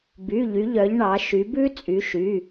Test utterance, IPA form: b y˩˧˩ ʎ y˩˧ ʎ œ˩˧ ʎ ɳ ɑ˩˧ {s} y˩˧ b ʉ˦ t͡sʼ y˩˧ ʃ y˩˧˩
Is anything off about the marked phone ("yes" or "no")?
yes